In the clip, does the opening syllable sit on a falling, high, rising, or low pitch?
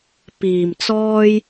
low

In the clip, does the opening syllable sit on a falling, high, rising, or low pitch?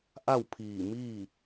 falling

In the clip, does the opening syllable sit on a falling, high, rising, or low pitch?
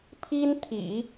high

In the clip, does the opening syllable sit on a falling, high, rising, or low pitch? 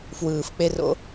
low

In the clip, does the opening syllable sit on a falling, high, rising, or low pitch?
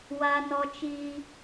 high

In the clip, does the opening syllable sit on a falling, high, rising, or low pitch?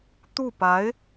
falling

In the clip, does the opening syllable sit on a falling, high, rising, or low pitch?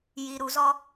low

